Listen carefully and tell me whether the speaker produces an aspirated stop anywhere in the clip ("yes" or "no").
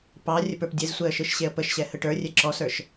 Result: no